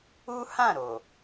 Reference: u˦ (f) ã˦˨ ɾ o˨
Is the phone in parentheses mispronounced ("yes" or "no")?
yes